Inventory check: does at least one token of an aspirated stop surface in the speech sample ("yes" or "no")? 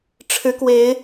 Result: yes